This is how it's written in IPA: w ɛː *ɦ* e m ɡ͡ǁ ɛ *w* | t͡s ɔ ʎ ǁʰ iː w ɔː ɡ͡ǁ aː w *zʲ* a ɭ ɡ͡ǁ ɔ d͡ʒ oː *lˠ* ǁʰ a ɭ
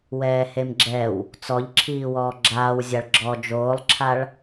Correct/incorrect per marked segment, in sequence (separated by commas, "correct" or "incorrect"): incorrect, correct, correct, correct